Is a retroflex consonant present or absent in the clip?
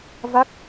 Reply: absent